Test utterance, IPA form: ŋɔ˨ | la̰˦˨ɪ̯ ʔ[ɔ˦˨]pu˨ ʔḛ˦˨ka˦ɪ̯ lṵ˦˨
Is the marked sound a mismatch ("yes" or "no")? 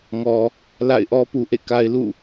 yes